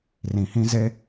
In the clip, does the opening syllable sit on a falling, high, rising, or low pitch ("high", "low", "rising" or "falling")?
low